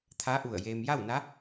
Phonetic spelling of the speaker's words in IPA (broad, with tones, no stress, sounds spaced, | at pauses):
t̪ʰ a˧˥ ʔ u˧˩ ə̯ j eː˧ m j a˥˨ w n a˧˥